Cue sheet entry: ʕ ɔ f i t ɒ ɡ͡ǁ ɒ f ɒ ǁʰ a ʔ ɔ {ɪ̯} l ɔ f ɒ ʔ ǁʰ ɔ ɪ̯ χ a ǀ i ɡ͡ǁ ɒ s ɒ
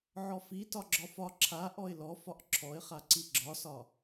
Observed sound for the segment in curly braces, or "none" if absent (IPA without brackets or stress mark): ɪ̯